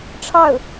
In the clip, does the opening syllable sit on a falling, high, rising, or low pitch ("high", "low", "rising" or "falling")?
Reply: falling